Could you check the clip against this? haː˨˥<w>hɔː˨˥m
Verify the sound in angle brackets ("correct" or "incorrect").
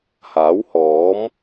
correct